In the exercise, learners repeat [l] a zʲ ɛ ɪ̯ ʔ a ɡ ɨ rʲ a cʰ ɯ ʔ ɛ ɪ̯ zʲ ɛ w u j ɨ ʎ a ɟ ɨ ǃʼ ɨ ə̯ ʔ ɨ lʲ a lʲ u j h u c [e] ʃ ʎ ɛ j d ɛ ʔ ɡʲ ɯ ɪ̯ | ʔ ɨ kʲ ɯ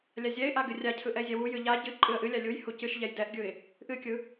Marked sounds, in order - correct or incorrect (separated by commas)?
incorrect, incorrect